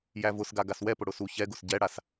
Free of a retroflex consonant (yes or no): no